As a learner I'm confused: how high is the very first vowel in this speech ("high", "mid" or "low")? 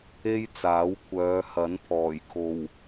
mid